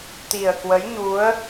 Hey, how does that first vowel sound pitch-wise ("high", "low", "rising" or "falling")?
low